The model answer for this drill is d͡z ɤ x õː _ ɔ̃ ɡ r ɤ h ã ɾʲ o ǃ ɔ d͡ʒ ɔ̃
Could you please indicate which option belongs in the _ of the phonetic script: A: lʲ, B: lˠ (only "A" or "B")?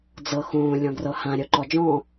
A